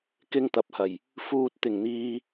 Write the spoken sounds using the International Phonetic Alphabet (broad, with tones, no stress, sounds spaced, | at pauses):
k ɪ˧ ŋ t̪ ɐ˨ p̚ h ɐ˨˩ j | f uː˨ t̚ t̪ ɪ˨˩ ŋ n̪ iː˨